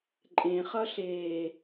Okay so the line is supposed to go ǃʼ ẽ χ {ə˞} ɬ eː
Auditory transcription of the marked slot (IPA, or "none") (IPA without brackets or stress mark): ʌ